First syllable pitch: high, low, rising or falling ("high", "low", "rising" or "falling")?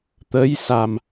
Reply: rising